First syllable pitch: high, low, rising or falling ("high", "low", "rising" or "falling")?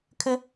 high